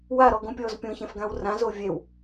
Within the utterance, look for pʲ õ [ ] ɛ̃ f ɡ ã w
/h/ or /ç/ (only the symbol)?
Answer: ç